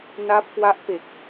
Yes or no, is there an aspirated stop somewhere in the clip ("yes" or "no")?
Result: no